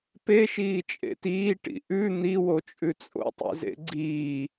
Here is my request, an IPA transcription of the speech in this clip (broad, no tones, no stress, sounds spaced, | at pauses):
p e ʃ iː t͡ʃʼ ḛ t iː ʈ ḭ ʔ ʉ n̪ i w o t͡ʃʼ ʉ t͡sʼ o̰ tˤ ḭ z ḛ ɡ͡ǀ iː